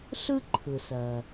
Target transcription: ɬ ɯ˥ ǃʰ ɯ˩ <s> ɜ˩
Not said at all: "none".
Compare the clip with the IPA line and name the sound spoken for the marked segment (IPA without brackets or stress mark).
s